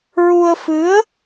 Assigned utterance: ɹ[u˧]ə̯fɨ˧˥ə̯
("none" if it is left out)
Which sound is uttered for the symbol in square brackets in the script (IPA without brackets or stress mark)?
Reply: u˧